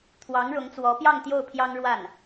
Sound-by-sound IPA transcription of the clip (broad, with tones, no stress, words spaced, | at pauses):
t̪ʰwɑ˧˥ŋɻʊ˧˥ŋt͡swɔ˧˥pjɑ˥˧ŋ t̪jo˥˩ʊ̯pʰjɑ˥ŋɻwa˥˩n